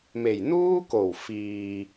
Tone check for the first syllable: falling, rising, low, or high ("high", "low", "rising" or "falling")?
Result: low